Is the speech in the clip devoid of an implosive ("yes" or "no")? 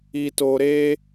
yes